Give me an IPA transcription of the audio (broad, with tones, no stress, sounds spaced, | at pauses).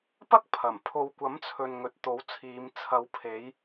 p ɐ˥ k̚ pʰ ɐ˨˩ m pʰ o˨ w kʷ ɐ˨˥ m t͡sʰ ɵ˨ n ŋ ɵ˨ t̚ t̪ o˨˥ w t͡sʰ iː˨˧ m t͡sʰ ɐ˨˧ w pʰ e˨˧ j